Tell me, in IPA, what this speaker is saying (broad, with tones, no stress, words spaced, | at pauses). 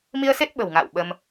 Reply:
mi˧ə̯se˦˥t̚ ɓə̤˨˩wŋa̰ː˧˨w ɓə˧m